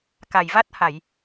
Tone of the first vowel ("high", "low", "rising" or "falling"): low